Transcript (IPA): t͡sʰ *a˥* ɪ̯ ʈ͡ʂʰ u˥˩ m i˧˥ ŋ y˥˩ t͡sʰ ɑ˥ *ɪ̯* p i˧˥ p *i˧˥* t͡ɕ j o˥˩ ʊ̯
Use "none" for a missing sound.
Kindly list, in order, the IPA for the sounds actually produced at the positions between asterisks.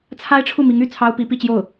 a˥, ʊ̯, i˥˧

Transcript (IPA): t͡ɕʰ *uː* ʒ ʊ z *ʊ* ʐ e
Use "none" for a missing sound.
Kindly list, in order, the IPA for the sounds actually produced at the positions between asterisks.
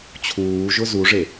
uː, u

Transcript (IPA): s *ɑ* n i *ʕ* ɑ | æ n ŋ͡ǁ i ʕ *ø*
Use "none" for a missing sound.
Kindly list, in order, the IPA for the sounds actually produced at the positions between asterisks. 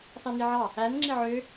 ɑ, ʕ, ø

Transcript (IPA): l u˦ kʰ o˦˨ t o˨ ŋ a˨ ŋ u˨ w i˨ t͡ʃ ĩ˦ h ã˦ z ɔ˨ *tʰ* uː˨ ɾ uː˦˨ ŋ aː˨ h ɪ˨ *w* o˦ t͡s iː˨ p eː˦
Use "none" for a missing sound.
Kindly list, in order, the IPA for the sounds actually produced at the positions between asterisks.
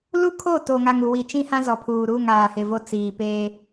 pʰ, v

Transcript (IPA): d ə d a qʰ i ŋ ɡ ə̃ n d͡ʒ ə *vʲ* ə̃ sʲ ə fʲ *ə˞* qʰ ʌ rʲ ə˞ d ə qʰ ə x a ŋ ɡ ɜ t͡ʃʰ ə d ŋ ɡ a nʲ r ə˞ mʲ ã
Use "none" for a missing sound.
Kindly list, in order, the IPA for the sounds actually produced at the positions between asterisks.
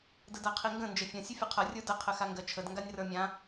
fʲ, ʌ

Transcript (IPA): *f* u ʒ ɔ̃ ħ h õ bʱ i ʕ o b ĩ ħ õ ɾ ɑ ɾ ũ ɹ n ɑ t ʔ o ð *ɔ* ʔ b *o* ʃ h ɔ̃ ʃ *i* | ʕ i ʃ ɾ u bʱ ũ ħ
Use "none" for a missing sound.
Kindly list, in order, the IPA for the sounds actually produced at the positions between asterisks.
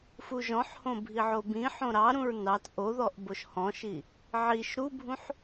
f, ɔ, o, i

